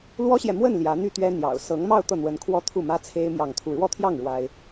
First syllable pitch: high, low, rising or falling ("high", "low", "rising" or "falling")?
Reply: high